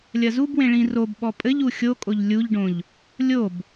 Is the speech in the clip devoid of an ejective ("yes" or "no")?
no